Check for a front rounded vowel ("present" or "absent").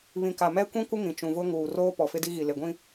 absent